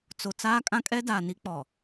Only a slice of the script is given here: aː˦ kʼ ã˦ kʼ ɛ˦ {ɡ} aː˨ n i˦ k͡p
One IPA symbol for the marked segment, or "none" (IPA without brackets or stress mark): d